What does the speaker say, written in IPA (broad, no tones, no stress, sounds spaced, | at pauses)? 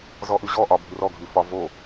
z ɔ ʔ ʉ ʑ ɔ ʔ ɒ bʱ ʉ r ɔ ɡʱ ʉ f ɒ v o